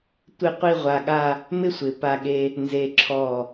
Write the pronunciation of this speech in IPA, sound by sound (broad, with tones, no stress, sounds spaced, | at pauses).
tʷ ɪ˥˧ qʷ i˥˧ ʁʷ a˧ ɠ a˥˧ | m ɪ˥ sʷ ɪ˩˧ p a˧ ɠ e˧ | n z e˧ ǁʰ ɔ˧˩